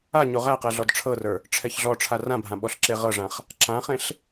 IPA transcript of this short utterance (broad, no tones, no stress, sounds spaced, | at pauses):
a ɲ o ʁ æ q ɛ ɮ ɔ d ʈ͡ʂʰ ɤ r ə˞ | ʈ͡ʂʰ ɛ ç ɮ ɔ ʈ͡ʂʰ a r ã bʱ ã ɓ ɔ ɬ ǁ e ʁ ɤ ʐ ã χ | ǁ ã χ ẽ ɬ